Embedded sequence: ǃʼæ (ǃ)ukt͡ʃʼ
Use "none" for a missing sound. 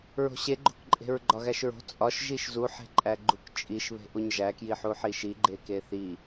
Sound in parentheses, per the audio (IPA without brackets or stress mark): ɡ͡ǃ